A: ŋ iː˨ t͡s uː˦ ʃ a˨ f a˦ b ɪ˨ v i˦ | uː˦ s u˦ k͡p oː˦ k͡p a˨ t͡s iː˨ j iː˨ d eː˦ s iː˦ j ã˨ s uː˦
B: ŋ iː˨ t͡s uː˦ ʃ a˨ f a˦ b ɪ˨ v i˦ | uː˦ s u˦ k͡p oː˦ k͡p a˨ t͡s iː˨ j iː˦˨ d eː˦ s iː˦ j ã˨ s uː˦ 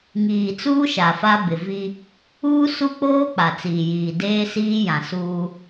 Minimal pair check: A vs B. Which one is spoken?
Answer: A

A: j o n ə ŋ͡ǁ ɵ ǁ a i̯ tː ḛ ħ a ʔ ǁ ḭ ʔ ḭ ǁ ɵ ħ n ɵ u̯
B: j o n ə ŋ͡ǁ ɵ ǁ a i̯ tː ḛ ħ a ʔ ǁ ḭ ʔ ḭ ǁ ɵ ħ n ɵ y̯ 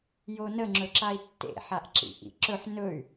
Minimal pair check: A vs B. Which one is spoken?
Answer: B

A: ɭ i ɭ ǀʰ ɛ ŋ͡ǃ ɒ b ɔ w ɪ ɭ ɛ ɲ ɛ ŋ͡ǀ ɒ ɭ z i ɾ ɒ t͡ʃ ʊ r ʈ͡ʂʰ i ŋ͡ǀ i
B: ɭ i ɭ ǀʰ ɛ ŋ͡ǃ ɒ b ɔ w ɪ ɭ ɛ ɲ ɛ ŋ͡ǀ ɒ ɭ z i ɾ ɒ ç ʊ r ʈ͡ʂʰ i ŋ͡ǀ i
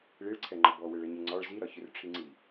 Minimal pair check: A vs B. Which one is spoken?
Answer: B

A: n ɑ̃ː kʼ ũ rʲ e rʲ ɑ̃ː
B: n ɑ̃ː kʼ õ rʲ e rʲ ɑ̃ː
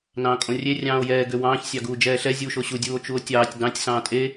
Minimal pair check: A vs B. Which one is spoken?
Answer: B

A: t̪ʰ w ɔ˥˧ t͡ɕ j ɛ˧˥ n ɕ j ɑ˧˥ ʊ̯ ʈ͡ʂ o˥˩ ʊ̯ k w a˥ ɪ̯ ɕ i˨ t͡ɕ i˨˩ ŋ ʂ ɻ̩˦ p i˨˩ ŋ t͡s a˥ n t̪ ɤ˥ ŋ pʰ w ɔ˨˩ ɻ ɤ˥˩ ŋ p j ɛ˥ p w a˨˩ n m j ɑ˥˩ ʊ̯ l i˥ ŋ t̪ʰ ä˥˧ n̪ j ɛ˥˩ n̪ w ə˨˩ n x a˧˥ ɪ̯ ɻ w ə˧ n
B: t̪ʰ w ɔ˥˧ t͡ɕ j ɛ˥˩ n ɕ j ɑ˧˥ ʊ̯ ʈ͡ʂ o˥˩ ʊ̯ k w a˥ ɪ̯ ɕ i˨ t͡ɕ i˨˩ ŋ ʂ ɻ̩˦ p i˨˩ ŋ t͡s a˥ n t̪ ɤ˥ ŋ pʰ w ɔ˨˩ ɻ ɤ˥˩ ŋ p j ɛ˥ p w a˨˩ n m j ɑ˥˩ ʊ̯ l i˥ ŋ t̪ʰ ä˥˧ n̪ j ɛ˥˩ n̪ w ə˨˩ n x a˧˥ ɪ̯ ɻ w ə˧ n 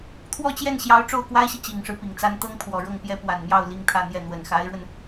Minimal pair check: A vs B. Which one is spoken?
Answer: B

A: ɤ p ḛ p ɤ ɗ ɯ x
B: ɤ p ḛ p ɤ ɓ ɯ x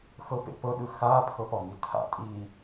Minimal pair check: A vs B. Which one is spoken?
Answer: A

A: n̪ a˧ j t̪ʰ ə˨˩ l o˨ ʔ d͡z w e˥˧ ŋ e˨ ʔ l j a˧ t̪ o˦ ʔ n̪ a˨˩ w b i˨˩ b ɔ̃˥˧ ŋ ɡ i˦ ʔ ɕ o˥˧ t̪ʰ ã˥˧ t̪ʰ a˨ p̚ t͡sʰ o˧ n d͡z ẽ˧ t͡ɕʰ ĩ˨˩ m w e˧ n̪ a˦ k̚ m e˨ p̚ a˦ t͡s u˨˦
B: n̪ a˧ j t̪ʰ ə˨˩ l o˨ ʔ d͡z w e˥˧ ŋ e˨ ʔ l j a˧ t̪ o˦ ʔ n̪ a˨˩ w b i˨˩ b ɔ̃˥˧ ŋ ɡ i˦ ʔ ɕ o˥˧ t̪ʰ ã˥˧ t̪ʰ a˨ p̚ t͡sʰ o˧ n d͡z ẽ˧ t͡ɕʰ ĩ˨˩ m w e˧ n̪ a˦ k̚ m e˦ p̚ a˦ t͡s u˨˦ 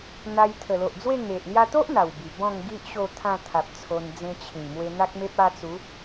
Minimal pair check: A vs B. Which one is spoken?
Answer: B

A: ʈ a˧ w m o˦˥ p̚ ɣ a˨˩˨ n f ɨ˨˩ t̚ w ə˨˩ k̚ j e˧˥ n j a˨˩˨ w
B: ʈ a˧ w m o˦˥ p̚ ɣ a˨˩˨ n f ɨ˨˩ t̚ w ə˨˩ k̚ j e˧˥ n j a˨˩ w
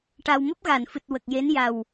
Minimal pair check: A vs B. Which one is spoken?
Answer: B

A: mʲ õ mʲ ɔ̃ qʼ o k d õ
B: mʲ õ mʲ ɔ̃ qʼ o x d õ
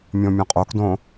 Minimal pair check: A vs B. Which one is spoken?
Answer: A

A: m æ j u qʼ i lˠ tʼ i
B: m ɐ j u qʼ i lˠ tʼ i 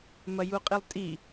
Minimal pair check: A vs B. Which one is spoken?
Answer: B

